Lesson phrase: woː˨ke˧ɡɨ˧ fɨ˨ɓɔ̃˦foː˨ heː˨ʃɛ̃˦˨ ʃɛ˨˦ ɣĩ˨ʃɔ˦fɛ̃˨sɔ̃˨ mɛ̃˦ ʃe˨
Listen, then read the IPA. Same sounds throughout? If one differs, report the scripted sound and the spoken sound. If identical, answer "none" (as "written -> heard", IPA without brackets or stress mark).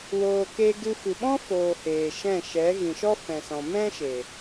none